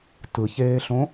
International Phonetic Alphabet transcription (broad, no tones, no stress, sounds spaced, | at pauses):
t ɯ ç eː ɬ õ